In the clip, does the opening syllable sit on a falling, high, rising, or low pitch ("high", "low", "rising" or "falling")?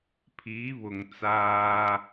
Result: rising